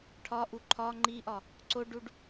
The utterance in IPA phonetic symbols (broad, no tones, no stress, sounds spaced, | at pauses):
ʈʰ ɒ ʔ u ǃʰ ɒ ŋ͡ǃ i ʔ ɒ | ǀ o ɖ u ɖ